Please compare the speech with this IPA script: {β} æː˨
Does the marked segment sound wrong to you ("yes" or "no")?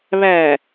no